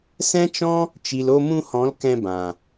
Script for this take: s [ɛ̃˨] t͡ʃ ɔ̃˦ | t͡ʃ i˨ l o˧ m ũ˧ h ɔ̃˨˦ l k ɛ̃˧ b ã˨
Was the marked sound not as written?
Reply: yes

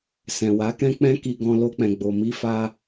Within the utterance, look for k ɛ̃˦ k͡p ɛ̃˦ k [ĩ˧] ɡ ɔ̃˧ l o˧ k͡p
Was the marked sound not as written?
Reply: yes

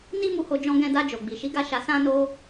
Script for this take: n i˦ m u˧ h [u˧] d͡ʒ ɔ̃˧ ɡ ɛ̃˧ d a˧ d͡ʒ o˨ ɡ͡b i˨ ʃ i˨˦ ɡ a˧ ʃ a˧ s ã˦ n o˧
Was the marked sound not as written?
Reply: yes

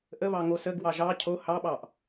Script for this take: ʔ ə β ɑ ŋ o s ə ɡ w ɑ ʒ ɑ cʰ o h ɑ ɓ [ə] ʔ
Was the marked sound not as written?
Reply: yes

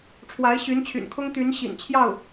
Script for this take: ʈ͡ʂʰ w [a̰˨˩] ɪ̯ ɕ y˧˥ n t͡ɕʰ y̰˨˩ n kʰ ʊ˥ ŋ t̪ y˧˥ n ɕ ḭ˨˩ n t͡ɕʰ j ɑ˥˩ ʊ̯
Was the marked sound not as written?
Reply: yes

